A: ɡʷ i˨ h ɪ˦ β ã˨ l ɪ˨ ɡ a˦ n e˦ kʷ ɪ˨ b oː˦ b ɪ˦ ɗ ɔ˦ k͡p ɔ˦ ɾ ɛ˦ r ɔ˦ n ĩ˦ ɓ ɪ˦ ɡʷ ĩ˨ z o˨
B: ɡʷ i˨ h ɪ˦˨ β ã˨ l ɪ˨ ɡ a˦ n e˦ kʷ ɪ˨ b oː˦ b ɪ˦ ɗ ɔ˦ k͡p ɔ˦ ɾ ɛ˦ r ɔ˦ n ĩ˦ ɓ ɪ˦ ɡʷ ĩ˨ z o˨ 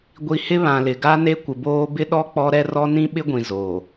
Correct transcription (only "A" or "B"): A